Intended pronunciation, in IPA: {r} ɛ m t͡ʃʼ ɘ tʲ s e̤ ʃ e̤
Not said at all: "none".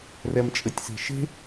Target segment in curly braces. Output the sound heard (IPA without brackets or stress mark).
r